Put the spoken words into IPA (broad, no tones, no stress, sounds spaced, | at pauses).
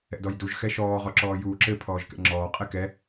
ɛ̰ d ɔ j d u ʒ x ɛ ʃ ɔː ʁ ɔ ǁ ɔː j uː ǁ ɘ pʰ ɔː ʒ k ɛ̰ ŋ͡ǁ ɔː qʼ ɛ k ɛ